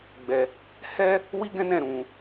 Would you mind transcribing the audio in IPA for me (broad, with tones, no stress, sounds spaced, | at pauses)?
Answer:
ɡ͡b ɛ˧ | h ɛ˦ | w i˦ ɡ ɛ̃˦ n ɛ̃˦˨ ɾ ũ˨˦